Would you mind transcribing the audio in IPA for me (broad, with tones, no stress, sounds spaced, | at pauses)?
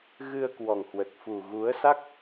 ɣ ɨ˧ ə̯ k w ɔ˨˩ ŋ h w ə˨˩ t̚ f u˨˩ ɣ u˨˦ ə̯ s a˦˥ k̚